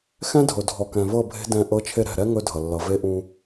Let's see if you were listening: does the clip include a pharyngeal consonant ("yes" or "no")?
no